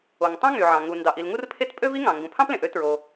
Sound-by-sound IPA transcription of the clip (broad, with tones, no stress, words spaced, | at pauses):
o˩ŋtˤɑ̃˥ ŋy˩ʕɑ̃˩ ŋu˩ ndɑ˩ʔi˩l ŋu˥rpʰe˥t pʼø˥vi˥ŋɑ̃˩ ŋɡũ˩pʰɑ̃˥plẽ˩ʔø˥ tɹo˩